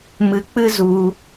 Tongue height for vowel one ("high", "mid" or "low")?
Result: high